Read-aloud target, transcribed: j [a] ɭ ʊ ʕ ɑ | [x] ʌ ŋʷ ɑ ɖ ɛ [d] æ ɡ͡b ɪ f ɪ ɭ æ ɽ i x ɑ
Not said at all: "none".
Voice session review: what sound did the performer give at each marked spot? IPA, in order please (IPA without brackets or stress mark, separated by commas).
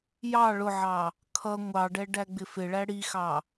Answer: ɑ, kʰ, ɖ